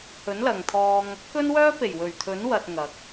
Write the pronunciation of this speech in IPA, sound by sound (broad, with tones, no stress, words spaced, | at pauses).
hɵ˨˥nlɐ˨ŋt̪ʰɔː˧ŋ | kɵ˥nwœː˥pe˨˩j wɵ˨˩ɥt̪ʰɵ˨˥nwɐ˨t̚ ŋɐ˨˥k̚